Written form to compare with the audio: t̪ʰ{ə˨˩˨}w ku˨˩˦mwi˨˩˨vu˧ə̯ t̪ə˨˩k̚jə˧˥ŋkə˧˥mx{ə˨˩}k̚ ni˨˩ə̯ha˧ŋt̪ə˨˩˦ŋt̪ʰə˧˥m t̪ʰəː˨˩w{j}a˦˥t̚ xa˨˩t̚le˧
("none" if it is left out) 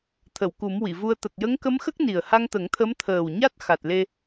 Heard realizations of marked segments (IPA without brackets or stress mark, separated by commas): ə˨˩˨, ə˦˥, ɲ